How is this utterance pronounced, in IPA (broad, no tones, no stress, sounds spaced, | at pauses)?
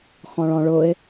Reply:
x ɔ̃ ɭ ɔ̃ ɭ ʊ ɪ̯